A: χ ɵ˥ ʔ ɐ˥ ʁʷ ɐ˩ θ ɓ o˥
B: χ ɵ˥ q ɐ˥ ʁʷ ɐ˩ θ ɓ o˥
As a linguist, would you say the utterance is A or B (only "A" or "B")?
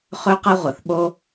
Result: B